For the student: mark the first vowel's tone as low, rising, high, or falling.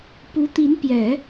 rising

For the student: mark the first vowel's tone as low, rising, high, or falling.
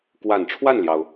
low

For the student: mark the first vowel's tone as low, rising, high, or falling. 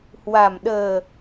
low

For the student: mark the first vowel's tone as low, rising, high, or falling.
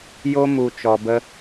high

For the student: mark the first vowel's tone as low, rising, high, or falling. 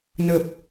low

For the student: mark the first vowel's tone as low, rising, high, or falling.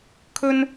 high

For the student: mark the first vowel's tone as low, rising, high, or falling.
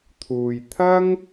low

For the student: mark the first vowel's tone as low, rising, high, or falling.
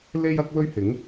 high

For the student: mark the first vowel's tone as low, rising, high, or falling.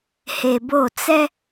low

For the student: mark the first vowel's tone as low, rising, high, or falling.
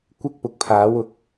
high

